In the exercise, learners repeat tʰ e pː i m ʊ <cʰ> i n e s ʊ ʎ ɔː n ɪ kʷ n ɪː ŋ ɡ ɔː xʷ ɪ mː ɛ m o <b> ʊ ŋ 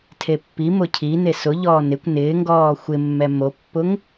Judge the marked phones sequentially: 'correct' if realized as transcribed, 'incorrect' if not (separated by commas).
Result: correct, incorrect